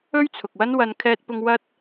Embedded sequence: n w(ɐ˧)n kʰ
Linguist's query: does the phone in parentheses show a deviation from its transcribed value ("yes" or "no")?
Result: no